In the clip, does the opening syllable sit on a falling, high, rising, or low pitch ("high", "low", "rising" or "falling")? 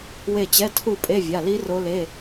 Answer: falling